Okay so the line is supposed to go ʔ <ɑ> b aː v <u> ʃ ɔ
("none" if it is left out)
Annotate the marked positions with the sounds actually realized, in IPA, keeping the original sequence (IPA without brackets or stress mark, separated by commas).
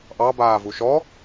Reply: ɑ, u